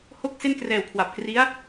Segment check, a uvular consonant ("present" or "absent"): absent